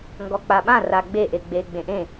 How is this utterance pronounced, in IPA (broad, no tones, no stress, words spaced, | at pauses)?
ŋɡɔk͡paɓã raɡ͡be ʔeɡ͡be ɡ͡bẽʔẽ